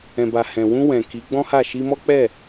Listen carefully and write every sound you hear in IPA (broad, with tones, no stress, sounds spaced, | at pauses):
ɛ̃˨ b a˨ h ɛ̃˨ w ũ˧ w ɛ̃˨ k i˨˦ ɡ͡b ɔ̃˦ h a˦˨ ʃ i˧ m ɔ˦ k͡p ɛ˦˨